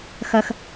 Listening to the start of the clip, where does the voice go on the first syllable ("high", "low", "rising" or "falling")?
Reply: low